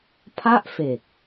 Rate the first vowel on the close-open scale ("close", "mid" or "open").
open